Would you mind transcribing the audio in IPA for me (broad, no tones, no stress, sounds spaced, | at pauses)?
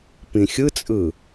p ĩ xʲ ɯ t͡sʼ ɯ